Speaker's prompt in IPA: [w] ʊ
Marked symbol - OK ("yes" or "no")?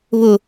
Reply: no